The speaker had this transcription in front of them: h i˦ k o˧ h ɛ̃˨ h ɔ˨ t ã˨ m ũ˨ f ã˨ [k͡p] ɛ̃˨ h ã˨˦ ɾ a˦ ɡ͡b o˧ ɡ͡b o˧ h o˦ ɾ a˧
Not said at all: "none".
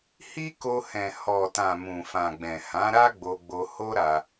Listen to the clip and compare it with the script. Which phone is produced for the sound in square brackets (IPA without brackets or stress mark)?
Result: ɡ͡b